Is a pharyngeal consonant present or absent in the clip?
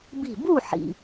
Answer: present